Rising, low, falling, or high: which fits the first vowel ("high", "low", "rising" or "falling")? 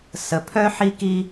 low